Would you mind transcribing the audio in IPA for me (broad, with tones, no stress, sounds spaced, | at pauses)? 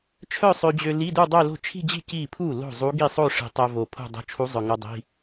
t͡ʃʰ œ˥˧ sˤ ø˧ d͡ʑ ø˧ l i˧˥˧ d u˥˧ dˤ œ˥˧ l o̤˥˩ t͡ʃʰ i̤˥˧ d͡ʑ i̤˥˩ c i˥˩ pʰ u˥˩ l o̤˥˩ zˤ u˧˥ ɡ i˥˩ sˤ o˥˧ ʂ i̤˨˩ tˤ œ˧ v o˨˩ pʰ o̤˥˧ dˤ o̤˧˥ t͡ʃʰ u˧˥ zˤ œ˨˩ ŋ o˧ dˤ i̤˧˥˧